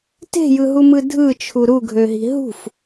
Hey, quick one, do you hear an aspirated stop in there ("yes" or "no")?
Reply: yes